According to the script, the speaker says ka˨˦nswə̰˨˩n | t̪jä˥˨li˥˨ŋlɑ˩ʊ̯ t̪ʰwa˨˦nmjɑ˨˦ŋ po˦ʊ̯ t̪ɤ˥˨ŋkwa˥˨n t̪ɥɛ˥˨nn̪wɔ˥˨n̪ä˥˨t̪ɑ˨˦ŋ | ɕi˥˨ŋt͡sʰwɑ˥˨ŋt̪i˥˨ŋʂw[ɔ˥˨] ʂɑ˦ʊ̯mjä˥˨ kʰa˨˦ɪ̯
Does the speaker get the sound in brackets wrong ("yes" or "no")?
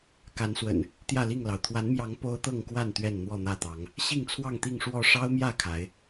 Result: no